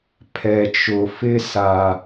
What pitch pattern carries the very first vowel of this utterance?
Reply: low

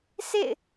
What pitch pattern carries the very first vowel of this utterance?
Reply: falling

